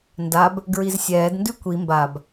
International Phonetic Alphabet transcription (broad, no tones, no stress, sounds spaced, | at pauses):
n d a b | ɡ ɹ i z sʲ ɛː d n d ʉ kʷ i m b a b